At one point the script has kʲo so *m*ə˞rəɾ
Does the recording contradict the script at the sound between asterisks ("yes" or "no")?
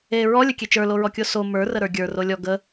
no